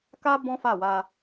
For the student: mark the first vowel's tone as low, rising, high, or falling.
high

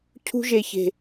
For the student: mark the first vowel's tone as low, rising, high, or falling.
high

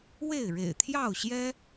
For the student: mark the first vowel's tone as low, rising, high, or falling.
falling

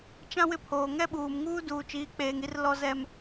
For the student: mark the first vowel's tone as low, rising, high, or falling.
high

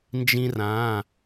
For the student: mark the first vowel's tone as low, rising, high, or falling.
high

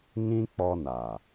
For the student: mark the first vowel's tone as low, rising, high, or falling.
high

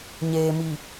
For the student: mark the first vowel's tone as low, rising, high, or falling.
low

